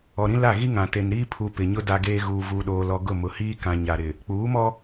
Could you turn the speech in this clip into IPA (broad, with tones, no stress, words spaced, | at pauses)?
ɔ˨ɾĩ˦la˦˨ ɣi˦ŋã˨ te˨nɾiː˦pʰu˨ pɪ˨ɲʊ˦ da˦ɡeː˦ ɣuː˨vuː˨ɗoː˨lɔ˨ ɡʊ˦˨mʊ˨hiː˦ kã˨ɲa˨ɾɪ˨ | k͡puː˨˦mɔ˦